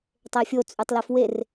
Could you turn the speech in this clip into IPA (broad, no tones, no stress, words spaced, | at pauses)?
tˤefʲot͡sʼytˤlef wer